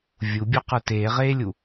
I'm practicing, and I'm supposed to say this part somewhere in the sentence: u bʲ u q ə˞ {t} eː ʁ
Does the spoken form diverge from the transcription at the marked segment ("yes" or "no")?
no